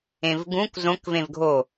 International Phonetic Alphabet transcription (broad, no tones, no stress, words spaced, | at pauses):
ẽvɡũk zõk vẽvɡʱo